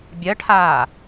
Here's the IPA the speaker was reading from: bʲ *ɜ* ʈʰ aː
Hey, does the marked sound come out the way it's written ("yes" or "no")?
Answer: yes